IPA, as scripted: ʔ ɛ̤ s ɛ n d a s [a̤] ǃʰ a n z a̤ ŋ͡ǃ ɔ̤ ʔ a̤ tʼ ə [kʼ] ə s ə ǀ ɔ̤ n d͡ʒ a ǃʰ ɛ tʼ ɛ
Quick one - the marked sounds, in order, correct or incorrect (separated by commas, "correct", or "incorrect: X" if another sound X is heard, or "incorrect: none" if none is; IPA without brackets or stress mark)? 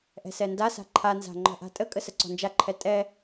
correct, correct